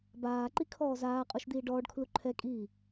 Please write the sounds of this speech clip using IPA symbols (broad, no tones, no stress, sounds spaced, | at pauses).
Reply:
b aː ǃ i kʰ ɔː z aː qʼ u ʃ d̪ iː ɖ ɔː ɖ kʰ l u ǃʰ ɛ kʼ iː